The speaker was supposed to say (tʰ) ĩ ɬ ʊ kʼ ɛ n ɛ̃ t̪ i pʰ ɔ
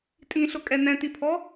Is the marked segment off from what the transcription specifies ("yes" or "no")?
yes